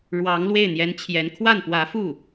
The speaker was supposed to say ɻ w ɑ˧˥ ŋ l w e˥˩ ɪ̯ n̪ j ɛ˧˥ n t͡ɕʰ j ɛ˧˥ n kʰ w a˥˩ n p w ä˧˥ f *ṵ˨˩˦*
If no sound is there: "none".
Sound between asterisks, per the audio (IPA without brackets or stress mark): u˥˩